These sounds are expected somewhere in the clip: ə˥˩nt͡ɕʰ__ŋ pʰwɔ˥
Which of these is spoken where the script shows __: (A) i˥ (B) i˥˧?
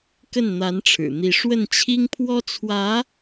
A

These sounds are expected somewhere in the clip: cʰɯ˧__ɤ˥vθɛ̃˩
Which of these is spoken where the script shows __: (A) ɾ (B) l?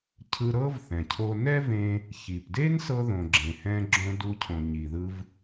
A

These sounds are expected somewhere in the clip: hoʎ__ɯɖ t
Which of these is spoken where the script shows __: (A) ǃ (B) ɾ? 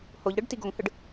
B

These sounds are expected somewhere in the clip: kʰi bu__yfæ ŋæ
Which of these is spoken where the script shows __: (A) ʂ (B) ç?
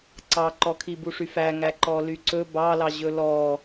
A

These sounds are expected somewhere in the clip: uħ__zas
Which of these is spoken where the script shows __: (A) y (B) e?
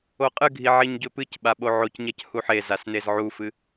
B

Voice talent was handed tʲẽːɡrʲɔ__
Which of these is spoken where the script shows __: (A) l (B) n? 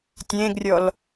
A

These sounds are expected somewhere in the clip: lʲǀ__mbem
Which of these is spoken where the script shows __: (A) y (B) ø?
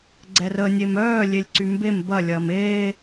A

